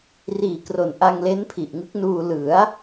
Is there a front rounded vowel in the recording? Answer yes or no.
no